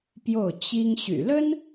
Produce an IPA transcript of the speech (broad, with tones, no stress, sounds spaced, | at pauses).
p j o˥˩ ʊ̯ t͡ɕ i˥ ŋ ɕ y̰˨˩ l ə˥ n